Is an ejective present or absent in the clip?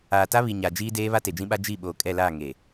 present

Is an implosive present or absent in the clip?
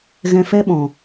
present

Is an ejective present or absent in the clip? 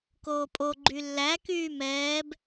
present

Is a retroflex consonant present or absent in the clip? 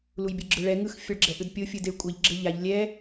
present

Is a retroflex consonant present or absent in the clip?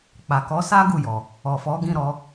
absent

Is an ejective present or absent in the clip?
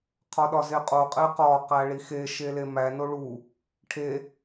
present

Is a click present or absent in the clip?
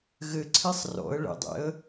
present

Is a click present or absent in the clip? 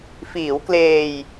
absent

